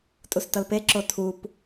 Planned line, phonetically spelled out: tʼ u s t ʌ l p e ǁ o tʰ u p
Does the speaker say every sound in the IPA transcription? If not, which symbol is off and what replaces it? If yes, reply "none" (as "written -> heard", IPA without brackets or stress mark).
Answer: none